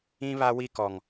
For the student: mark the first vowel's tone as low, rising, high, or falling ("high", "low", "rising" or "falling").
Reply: high